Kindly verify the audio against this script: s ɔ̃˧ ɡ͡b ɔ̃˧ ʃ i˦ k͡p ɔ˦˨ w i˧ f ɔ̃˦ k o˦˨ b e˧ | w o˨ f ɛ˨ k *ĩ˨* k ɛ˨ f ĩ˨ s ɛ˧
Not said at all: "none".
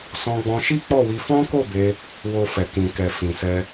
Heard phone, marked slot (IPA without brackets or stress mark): ĩ˨